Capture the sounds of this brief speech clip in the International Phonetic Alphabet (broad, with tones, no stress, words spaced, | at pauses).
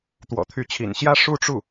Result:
t̪wɔ̰˨˩t̪ʰy˧˥t͡ɕʰḭ˨˩n ɕjä˥ ʂu˥˧ʈ͡ʂu˥˩